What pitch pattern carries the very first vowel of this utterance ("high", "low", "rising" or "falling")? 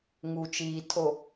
low